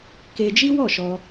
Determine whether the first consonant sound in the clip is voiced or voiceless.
voiceless